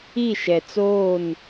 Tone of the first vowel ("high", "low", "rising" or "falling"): falling